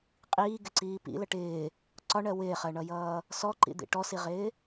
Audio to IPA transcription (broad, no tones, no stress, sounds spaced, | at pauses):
qʼ iː ɡ ɪ ǀ iː p ḭ l ə ʈ ɪː | ǀ ɒ ɳ ɜ w ɪː χ ɜ ɳ ʌ j ʌː | s ɔ ǃ ḭ d̪ ḭ ʈ ɔ s i ʁ ɪː